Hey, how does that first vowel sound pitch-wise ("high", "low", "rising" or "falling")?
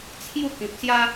falling